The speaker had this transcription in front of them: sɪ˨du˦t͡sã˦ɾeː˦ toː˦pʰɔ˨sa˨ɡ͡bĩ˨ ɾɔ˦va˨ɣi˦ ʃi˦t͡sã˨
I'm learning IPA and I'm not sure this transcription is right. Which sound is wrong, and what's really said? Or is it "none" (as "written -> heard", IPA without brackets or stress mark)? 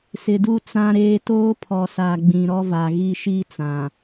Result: none